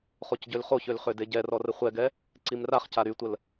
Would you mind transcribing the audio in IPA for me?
χ o c ɟ ø l χ o ç ø l χ ø d e ɟ ɛ r ɔ r ə χʷ ɛ ɡ ɛ | ǀ i m r a χ c a ɾ y tʷ ə l

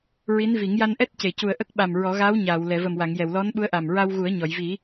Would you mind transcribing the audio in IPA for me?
ɹ i˧˥ n v i˨˩˦ ŋ j a˧ n ʔ ɛ˦˥ t̚ c e˨˩˨ c u˨˩ ə̯ ʔ ə˦˥ k̚ ɓ a˨˩ m ɹ ɔ˨˩˦ ɣ aː˧˥ w ɲ aː˨˩˨ w l ɛ˨˩˨ v ə˨˩ m w a˨˩˨ ŋ j ɛ˨˩˨ w l ɔ˧˥ n ɓ u˧˥ ə̯ ʔ a˨˩ m ɹ a˧ w ɣ u˨˩˦ ə̯ ɲ ɔ˨˩˨ j v i˨˩˦

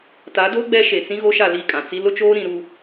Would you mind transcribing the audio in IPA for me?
t a˨˦ d o˦ ɡ͡b ɛ˦ ʃ e˨ t͡s ĩ˦ ɣ o˦ ʃ a˦˨ l i˦˨ kʼ ã˨ t͡s i˦ l ʊ˦ t͡ʃ oː˦ ɾ ĩ˨˦ ɾ u˦

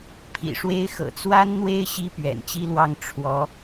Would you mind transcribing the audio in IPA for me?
pʰ ḭ˨˩ ʂ w e˥ ɪ̯ x ɤ̰˨˩ t͡s w a˥ n n̪ w e˥ ɪ̯ ɕ i˥ p ɥ ɛ̰˨˩ n t͡ɕ i˥ l w ɑ˥˩ ŋ ʈ͡ʂʰ w ɔ˧˥

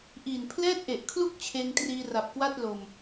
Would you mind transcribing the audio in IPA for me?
ʔ iː˨˩ n pʰ l ɛː˥˩ t̚ ʔ e˨˩ ʔ kʰ l u˥˩ k̚ t͡ɕʰ eː˧ ŋ t r iː˧ r a˨˩ p̚ k w a˥˩ t̚ l o˧ m

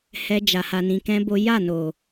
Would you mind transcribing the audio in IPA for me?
h ɛ˦ d͡ʒ a˧ h a˧ n ĩ˧ k ɛ̃˦ b o˦ j a˦˨ n o˨

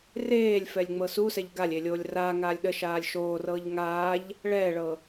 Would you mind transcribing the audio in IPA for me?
r eː lʲ f ɛ lʲ ŋ͡m ɤ s u s ɛ ʎ ɡ a lʲ e lʲ oː lʲ r aː ŋ aː lʲ ɗ ə ʃ aː lʲ ʃ oː r ɤː ʎ ŋ aː ʎ | ɭ ɛː ɭ ɤ

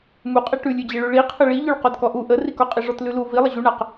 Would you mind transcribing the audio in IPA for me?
m u qʼ e ʈ ʉ lʲ ʉ d͡ʑ e ɭ ʉ ɭ i qʰ ə ɭ i ʎ ʉ ɭ q ɔ d k ɔ ʔ u ʔ ə r i k ɔ qʼ i ʐ ɔ t l ʉ l u v i lˠ ə ʑ u ɳ a q

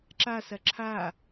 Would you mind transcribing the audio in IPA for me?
ǁ a s ɐ ǁʰ a

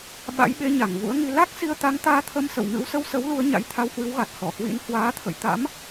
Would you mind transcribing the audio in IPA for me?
ɓ a̰˧˥ j ɓ e˧ ɲ a˧˩ ŋ v ṵ˧˥ ə̯ ŋ i˧ l a˦˥ k̚ s i˧ ə̯ t̪ a˨˦ ŋ t̪ aː˧ t̪ʰ ə˧ m s ə̰˧˨ w ŋ ɨ̰˧˥ w s ə˧ w s ə˨˦ w l u˧ ə̯ ɲ a̰˧˥ j t̪ʰ a˧ w h w ɨ˨˦ w ɣ a˨˩ t̚ h ɔ˧˩ h w ḭ˧˥ n h w aː˨˦ t̪ʰ ə̰˧˨ j t̪ a̰˧˥ m

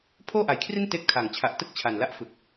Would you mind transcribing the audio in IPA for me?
pʰ oː˥˩ ʔ a˩˦ j kʰ r i˥˩ n t eː˥˩ k̚ tʰ a˨˩ ŋ t͡ɕʰ a˨˩ ʔ t ɯ˥˩ k̚ t͡ɕʰ a˨˩ n l a˥˩ ʔ f ɯ˨˩ k̚

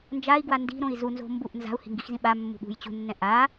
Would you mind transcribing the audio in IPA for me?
n d͡ʒ a i̯ ɡ w a n d i̤ ɾ õ i̯ z u n z o̤ m b u ʔ n z a̤ u̯ h i̤ ŋ ɡ i x z ĩ ɓ a mː ṳ ɠ ṳ j t͡ɕ ṳ nː ɛ̃ ʔ a

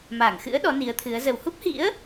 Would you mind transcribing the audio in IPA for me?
m a˧˩ ŋ x ɨ̰˧˥ ə̯ ɗ ɔ˨˦ n i˨˦ ə̯ t̪ʰ ɨ˨˦ ə̯ z ə˨˩ w h u˦˥ p̚ h ḭ˧˥ ə̯

